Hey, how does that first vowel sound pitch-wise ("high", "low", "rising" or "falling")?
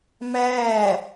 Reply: falling